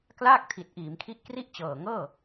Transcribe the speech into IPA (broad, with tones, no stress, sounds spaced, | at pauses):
k l aː˥˩ k̚ tʰ i˨˩ t̚ ʔ iː˩˦ m kʰ i˦˥ ʔ k r i˥˩ ʔ t͡ɕ ɤː˨˩ ŋ ɤː˥˩